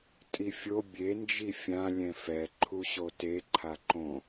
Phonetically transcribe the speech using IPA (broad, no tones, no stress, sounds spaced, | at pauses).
tʼ i fʲ o bʲ e n d͡ʒ i fʲ ã lʲ ɛ̃ f ɛ ǃʰ u ɕ o t e ǃʰ a ǃ õ